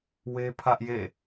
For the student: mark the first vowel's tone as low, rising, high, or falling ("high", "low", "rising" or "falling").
high